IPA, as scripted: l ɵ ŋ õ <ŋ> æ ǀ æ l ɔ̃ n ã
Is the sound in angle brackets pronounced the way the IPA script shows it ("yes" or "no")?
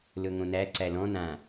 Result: no